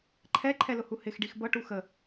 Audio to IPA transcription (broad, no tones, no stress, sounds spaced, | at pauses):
ǃʰ ɛ ǃʰ ɛ l ʊ h u h ɪ x ɖ i x b ʌ ʈ u x ə